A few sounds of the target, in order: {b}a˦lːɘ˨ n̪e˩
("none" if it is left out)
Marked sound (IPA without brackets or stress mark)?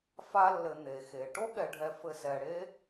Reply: f